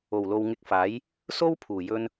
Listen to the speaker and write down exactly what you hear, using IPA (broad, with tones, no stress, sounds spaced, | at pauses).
o˨˩ w l o˨ w ŋ ɪ˧ k̚ f aː˨˥ j | s o˥ w pʰ uː˨˩ j ɵ˧ n